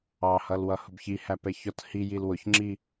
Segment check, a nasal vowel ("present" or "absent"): absent